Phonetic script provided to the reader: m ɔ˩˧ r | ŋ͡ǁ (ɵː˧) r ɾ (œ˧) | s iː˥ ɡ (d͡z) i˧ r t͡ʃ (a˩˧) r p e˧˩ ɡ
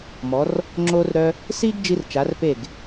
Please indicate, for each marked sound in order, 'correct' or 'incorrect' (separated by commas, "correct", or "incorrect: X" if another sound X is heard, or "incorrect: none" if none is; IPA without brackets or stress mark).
incorrect: oː˧, correct, incorrect: d͡ʒ, correct